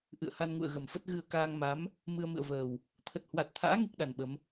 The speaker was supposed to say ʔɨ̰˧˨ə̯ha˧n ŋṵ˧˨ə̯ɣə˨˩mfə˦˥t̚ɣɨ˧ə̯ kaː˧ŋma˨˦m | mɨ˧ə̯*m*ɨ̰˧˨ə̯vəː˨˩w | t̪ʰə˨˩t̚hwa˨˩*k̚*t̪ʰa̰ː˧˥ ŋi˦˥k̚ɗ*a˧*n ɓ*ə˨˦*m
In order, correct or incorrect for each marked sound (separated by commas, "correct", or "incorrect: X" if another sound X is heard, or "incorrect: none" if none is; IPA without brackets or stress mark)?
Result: correct, incorrect: t̚, incorrect: a˨˩, correct